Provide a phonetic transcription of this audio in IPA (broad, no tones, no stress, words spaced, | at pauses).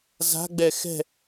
za̤ɡ͡bɛ xɛ̤